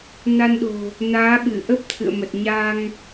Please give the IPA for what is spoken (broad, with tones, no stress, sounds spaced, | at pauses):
n a˧ n ɗ o̤˨˩ | n aː˨˦ ɓ ɨ˧˩ ʔ ə˦˥ p̚ t̪ʰ ɨ̰˧˨ ə̯ m ə˨˩ t̚ ɲ a˧ ŋ